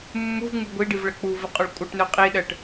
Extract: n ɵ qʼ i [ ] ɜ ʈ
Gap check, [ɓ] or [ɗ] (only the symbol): ɗ